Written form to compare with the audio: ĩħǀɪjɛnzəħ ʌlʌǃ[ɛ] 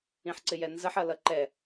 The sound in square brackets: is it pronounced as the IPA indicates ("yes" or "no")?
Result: yes